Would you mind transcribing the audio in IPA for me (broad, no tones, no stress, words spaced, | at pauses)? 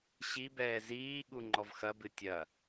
ɕibɛː ziːɠu ŋ͡ǃɔvxɐbɨ tʲɐ